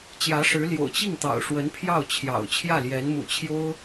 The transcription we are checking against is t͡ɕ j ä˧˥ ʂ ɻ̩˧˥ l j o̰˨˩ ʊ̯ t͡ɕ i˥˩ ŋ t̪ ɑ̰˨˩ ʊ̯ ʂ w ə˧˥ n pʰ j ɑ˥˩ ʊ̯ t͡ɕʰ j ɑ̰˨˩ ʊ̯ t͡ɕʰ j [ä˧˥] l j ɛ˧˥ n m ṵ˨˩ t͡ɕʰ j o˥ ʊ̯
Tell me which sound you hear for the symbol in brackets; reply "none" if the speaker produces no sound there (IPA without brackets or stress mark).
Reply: ä˥˩